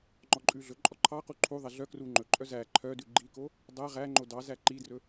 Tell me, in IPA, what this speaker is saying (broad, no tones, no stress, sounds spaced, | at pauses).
ŋ͡ǃ ɔ ǃʼ ʉ ɮ ɵ ǃʼ ɔ ǃʰ ɑ q u ǃʰ u ðˤ ɛ ɮ œ k r u ŋ͡ǃ ɵ ǃʼ œ z æ ǃʰ œ d ʉ ɡ͡ǃ i k o | dˤ æ ʁ æ ŋ͡ǃ o d ɑ z æ ǃ i d r ɵ